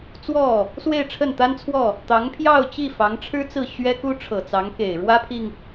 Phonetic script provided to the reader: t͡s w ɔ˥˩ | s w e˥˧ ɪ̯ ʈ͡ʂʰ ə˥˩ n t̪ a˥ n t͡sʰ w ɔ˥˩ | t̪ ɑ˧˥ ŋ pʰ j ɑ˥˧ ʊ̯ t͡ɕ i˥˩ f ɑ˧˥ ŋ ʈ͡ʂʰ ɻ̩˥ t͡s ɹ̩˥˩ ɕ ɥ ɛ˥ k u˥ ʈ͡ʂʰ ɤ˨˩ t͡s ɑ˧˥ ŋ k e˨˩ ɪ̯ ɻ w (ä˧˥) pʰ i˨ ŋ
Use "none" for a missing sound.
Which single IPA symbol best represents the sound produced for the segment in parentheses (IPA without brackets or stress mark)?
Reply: ä˥